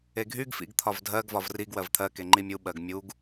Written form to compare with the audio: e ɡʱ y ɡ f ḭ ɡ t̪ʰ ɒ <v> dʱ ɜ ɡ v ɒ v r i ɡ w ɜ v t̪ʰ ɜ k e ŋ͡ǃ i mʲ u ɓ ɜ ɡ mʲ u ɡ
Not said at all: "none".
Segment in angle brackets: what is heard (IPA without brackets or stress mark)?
v